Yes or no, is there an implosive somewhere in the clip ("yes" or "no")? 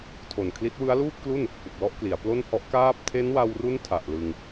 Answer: no